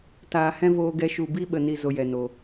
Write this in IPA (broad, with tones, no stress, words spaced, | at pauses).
taː˨hɛ̃˦voː˧ɡɛ˧ ʃu˨bi˦ɓə˨ni˨ zo˧jɛ˨no˨